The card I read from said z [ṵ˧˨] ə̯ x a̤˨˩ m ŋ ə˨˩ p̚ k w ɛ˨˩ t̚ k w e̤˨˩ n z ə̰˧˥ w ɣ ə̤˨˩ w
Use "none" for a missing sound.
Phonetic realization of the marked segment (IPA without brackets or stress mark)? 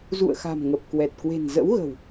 ṵ˧˨